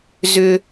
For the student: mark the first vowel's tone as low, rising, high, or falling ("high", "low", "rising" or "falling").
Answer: high